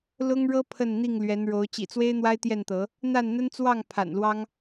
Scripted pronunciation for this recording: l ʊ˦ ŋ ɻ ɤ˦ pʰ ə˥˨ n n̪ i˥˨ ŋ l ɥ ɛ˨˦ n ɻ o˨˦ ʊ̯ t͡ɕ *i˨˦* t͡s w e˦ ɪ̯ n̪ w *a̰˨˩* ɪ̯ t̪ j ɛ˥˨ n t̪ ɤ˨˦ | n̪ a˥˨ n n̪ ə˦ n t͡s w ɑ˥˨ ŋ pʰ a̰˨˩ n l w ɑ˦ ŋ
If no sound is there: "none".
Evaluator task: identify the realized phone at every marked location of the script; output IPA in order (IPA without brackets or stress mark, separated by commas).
ḭ˨˩, a˦